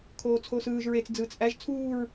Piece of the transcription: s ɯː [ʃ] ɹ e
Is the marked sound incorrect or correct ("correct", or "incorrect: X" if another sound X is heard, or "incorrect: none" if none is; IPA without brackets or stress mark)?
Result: incorrect: ʒ